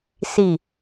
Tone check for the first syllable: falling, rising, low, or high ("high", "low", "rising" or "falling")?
low